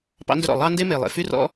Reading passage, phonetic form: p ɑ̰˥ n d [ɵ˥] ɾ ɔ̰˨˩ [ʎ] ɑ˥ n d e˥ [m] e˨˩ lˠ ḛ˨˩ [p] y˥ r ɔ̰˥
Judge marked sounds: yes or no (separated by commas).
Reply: yes, no, yes, no